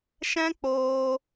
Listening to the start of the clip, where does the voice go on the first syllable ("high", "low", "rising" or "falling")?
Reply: high